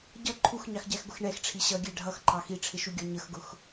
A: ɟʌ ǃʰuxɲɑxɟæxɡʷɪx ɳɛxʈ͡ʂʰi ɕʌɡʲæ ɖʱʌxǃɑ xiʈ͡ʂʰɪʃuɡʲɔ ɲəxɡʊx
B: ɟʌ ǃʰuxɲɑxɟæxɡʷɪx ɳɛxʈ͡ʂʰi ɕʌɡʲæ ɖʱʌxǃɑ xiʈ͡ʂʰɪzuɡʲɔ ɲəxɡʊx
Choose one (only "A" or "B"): A